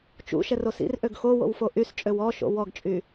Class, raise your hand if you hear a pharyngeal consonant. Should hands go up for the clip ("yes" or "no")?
no